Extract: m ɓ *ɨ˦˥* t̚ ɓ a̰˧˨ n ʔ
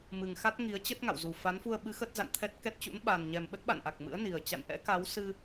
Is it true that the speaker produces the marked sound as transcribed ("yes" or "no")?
no